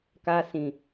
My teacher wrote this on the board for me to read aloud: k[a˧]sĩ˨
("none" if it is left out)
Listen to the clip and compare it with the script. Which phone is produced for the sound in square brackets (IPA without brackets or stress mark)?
a˧